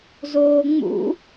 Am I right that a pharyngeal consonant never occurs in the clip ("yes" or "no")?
yes